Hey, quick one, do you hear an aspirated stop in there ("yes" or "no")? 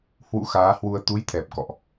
yes